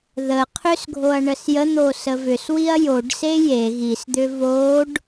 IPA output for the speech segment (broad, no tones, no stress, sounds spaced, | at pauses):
ð ə qʰ ʏ s ɡʱ o ɐ̯ ɳ ə s j ə n̪ o s ə v ʏ s w i ɐ̯ j o ɖ s e j e ɣ i s d̪ ʏ v o ɖ